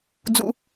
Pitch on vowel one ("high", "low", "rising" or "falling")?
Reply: low